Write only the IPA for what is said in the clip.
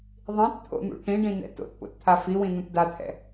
ðˤ ĩ t t̪ʰ o̰ n̪ ṵ ʈ ĩ ɖ ĩ n ɛ̰ t o̰ t p o̰ t t̪ʰ a f i w ĩ n̪ ũ t d a t̪ʰ ɛ̰

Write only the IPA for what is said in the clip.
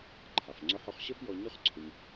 ǃʰ a˩ f ŋ͡ǀ ʊ˧ ħ ʊ˧ χ ɕ ə˥ f j ɔ˧ ɲ ʊ˥ χ ǀʰ ʊ˧ ɲ

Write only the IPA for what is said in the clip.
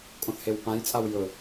kʼ õ θ h e w p ã j t͡sʼ a w j ɵ

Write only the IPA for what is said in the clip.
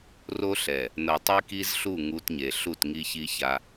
r o˦ ɬ ɛ˨ | n ɤ˨ tˤ i˦ k i˦ z ɬ u˦˨ ŋ u˦ t ɲ e˨ ɬ u˦˨ t ŋ i˦ ç i˦ ç a˦

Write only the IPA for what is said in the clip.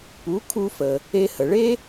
p u˩˥ kʰ u˧ f ə˩ | e˧ h ə˩ ɭ e˥

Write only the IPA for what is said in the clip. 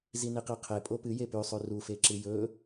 z i n i q e qʰ e pʼ o p ɨ j e p ʉ sˤ ʉ r u f e ǁ ɨ j ɵ

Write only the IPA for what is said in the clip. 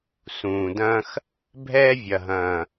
s ũː˨ d ɐ̃ː˦ x | bʱ ɛː˦ vʲ ɐ˨ ɦ ɐ̃ː˨

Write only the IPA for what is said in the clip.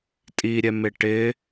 tʼ i ɾʲ ɛ m ɪ ʈ ɪ

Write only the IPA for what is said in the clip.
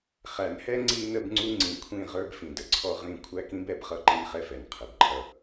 χ æ˨ n h ɛ˦ ŋ͡ǀ i˦ n ə˦ b ŋ͡ǀ u˦ ŋ͡ǀ ĩ˨ kʷʰ ĩ˦˨ ʁ ə˞˦ b f ĩ˨ d ə˨ ǀʰ ɔ˦ ʁ ĩ˦˨ kʷʰ æ˦ k ĩ˦ b ɛ˨ b χ ʌ˦ ǃ i˦ n χ ɛ˦ f ɛ˨ n qʰ ə˨ b ǃʰ ʌ˦

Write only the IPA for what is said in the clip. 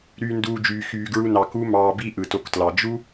ɾ yː˧ n d uː˧ d͡ʒ yː˧ x yː˧ ɡ ɹ u˧ n ɑ˨ k u˦ m ɑː˧ b i˦ ʔ ɯ˨ t o˧ k t l ɑ˨ d͡ʒ u˦

